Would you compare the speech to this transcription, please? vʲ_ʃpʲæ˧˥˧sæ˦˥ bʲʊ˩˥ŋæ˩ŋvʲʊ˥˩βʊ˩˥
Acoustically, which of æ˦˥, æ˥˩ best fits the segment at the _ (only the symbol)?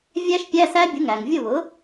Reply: æ˦˥